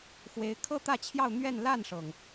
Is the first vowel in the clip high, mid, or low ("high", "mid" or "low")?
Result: mid